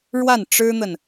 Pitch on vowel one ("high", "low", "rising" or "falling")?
falling